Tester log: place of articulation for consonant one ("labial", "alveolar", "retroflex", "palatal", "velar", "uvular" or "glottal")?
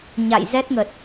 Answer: palatal